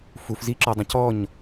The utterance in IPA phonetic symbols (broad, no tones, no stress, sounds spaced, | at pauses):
f u f z i ǁ ɔ dˤ õ c ɔ ɲ